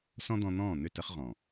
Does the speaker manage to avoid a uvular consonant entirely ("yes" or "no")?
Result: no